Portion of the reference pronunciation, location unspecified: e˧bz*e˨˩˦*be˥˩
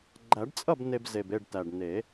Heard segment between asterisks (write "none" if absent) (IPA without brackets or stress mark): e˨˩